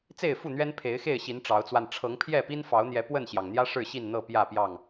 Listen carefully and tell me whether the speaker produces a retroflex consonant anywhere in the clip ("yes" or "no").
yes